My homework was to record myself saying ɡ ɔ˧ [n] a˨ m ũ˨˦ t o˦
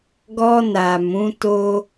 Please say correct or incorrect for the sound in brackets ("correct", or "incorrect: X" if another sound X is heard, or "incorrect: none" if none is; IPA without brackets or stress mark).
correct